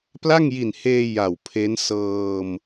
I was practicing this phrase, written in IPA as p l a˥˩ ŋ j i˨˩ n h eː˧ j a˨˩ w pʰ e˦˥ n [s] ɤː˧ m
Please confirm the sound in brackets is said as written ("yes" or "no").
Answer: yes